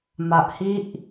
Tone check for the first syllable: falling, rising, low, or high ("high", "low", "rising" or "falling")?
low